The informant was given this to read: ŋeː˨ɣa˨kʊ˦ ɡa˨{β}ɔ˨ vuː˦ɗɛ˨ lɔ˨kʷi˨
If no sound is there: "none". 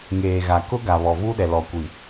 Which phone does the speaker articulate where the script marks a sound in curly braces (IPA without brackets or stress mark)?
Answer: β